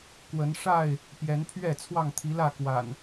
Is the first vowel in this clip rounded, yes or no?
no